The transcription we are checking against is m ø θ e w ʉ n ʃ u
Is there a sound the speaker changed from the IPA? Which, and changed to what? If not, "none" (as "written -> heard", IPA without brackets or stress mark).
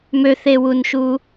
ʉ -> u